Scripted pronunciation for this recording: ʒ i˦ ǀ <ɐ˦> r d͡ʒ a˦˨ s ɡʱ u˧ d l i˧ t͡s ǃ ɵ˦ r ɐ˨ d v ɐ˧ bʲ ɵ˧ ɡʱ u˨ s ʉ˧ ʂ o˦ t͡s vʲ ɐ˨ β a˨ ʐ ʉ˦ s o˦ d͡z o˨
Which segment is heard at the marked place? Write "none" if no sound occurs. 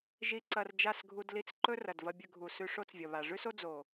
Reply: ɐ˧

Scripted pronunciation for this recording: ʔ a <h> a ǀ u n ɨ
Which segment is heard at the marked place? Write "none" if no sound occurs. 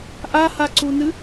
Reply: h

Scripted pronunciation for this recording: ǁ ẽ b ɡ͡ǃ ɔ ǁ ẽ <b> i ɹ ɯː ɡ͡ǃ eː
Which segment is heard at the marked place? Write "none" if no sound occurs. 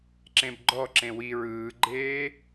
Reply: w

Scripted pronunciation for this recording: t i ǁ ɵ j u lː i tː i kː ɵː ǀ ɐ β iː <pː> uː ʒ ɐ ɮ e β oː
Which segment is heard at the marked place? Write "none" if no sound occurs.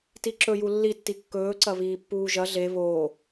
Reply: pː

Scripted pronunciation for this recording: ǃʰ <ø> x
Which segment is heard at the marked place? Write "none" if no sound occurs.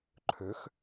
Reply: ø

